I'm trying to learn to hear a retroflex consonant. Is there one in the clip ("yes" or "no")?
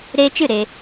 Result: no